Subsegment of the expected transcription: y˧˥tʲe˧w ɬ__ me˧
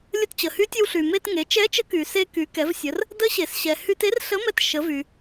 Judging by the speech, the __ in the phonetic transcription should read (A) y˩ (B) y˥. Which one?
A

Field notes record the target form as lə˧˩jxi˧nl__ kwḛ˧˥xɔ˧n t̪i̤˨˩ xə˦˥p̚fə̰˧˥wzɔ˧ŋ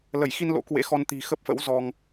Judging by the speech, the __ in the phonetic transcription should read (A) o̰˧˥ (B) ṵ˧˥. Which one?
A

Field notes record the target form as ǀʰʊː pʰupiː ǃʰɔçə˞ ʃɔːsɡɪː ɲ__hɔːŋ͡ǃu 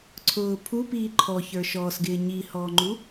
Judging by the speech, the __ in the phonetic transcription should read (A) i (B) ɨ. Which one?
A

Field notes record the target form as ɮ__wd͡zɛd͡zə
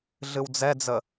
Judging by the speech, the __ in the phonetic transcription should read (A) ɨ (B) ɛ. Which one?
A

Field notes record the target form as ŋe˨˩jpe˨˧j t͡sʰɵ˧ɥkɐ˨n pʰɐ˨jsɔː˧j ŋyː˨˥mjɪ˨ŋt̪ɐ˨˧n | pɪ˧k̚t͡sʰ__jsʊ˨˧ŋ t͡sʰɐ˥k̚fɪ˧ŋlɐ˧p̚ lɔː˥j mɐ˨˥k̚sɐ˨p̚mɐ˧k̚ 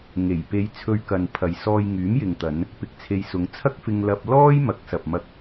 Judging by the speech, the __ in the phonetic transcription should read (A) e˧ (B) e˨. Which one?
A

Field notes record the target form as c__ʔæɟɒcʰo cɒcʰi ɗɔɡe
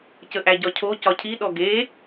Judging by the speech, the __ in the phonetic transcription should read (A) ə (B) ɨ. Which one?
A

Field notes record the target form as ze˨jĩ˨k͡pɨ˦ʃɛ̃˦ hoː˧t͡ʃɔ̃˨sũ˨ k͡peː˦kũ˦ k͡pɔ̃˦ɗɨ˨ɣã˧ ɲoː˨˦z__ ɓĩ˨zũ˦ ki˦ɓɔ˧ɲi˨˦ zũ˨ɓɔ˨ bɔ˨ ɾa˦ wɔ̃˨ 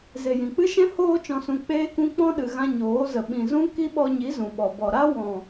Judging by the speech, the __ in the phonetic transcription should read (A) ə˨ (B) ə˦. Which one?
A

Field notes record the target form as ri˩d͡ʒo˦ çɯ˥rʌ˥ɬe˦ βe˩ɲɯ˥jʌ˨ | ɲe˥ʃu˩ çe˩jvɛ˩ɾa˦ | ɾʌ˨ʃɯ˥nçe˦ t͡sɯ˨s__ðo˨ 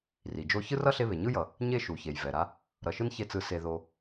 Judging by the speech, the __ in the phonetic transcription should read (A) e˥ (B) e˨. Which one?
B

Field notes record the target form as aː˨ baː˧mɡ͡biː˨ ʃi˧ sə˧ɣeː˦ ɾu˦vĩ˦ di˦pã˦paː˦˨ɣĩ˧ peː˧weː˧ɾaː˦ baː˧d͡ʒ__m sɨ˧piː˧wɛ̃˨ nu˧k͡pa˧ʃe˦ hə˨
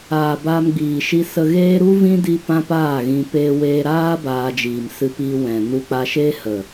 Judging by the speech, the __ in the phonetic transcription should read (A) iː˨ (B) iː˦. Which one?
A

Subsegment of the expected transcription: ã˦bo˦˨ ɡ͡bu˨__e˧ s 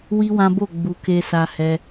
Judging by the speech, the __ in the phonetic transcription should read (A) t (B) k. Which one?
B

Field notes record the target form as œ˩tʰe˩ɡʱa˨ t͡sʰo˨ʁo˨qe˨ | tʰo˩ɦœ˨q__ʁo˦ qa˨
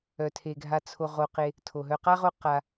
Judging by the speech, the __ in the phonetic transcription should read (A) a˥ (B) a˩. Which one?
A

